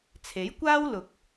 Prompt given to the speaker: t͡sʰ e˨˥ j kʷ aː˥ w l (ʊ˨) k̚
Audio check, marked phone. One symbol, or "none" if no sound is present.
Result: ʊ˨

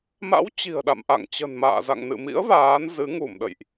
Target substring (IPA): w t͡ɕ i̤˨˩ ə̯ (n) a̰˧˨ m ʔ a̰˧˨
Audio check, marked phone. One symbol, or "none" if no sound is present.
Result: ɗ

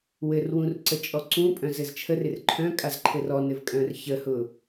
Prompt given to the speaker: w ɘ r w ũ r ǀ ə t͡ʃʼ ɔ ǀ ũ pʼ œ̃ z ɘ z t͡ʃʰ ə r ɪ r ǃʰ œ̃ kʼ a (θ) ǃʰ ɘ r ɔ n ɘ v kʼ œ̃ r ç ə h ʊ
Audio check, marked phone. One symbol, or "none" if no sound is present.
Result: z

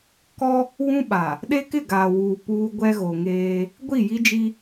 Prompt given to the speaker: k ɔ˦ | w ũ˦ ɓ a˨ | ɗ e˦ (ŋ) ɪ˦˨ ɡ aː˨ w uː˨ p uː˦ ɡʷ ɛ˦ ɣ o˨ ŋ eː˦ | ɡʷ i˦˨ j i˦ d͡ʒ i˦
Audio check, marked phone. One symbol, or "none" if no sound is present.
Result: k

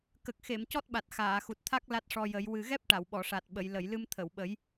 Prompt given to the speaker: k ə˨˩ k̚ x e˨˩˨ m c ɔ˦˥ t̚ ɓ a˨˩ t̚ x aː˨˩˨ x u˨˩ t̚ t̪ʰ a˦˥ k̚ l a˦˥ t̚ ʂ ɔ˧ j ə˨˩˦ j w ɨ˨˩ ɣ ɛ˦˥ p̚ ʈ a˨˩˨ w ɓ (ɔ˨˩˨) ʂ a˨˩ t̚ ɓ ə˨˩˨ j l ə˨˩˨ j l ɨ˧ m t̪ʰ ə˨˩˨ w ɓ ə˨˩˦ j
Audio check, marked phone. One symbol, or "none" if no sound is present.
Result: ɔ˨˩˨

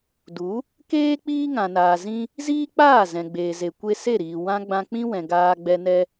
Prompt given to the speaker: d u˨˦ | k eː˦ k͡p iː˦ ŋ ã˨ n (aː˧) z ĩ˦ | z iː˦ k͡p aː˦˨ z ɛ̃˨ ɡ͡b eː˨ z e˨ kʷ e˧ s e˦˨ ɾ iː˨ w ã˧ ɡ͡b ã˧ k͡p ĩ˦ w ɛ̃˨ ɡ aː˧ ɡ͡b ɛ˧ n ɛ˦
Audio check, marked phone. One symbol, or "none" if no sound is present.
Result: aː˨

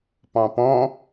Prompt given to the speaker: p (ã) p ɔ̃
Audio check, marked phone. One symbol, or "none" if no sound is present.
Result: ɑ̃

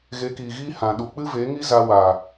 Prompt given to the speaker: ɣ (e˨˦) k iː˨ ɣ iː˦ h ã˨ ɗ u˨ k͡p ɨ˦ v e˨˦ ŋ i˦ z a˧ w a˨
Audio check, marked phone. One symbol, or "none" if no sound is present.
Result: e˨˦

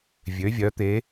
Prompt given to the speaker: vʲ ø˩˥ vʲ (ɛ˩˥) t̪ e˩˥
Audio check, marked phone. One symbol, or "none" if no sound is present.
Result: œ˩˥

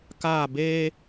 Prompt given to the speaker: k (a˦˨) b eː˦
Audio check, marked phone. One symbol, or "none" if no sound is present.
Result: aː˦˨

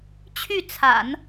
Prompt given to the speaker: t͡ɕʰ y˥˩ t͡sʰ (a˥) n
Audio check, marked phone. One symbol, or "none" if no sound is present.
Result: a̰˨˩˦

